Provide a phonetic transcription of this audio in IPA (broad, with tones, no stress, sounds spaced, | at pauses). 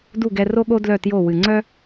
d u˥˩ ɡ ɛ˧ r o˥ ɠ o˥ d l œ˥˩ t j o˥˩ w ɨ˩ ŋ͡ǀ œ˥